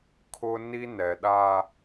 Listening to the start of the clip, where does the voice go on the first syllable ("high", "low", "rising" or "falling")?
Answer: high